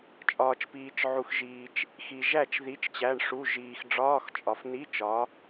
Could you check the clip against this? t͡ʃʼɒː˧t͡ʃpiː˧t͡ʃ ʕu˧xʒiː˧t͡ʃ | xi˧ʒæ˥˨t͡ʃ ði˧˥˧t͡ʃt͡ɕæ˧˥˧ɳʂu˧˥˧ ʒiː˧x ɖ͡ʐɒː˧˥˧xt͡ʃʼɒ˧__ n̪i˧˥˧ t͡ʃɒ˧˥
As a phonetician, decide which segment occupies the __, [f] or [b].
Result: f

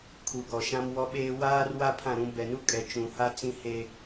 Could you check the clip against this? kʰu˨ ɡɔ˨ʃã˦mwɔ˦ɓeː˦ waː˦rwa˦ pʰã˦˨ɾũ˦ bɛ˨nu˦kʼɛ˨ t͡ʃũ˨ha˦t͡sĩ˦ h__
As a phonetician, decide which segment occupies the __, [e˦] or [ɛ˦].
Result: e˦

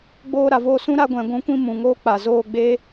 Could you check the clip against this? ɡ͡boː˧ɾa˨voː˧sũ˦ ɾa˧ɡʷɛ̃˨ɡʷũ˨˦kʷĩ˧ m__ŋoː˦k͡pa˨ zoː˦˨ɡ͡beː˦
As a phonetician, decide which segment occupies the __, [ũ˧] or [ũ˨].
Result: ũ˨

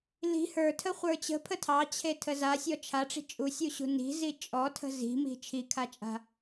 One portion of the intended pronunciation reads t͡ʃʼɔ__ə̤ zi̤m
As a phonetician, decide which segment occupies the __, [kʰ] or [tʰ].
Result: tʰ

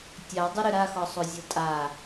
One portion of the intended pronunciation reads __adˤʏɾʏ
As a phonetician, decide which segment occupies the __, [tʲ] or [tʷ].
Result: tʲ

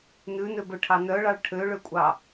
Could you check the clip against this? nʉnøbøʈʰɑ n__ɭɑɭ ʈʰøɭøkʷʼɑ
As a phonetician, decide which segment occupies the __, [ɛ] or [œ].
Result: œ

